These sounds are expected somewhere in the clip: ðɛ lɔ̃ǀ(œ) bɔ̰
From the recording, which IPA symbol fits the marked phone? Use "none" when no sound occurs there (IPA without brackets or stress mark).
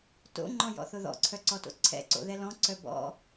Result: œ